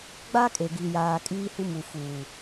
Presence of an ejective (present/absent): present